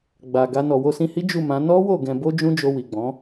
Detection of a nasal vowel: present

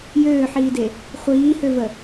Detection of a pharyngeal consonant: present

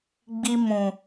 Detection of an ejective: absent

